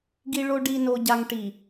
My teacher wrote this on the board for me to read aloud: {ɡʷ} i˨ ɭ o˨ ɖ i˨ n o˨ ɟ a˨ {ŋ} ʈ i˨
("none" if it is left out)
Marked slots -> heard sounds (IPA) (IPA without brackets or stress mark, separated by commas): ɡ, ŋ